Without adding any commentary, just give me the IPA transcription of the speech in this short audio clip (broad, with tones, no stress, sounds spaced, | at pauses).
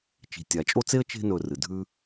t͡ʃ i̤˨ tʲ a˨ t͡ʃʼ o˥ t͡s e˥ ə̯ t͡ʃ e̤˦ n ɵ˨ r ɨ˩ dʱ ʉ˦